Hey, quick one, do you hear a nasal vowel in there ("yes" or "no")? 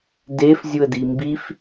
no